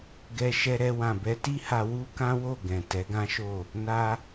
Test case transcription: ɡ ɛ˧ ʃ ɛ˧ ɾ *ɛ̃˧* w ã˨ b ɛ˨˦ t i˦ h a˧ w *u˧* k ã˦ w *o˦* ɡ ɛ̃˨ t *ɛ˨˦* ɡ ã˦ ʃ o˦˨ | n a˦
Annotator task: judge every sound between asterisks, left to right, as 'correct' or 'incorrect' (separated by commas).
incorrect, incorrect, incorrect, correct